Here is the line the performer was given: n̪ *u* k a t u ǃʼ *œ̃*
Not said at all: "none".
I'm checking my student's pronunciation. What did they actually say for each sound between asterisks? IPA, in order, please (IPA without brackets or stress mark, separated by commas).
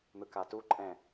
ɯ, ɛ̃